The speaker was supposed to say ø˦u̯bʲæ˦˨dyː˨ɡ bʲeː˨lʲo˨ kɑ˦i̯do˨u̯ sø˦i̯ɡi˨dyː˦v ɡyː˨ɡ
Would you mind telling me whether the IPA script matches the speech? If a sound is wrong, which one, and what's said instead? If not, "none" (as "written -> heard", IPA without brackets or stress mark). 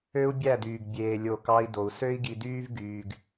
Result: none